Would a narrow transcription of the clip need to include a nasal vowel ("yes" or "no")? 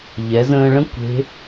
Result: yes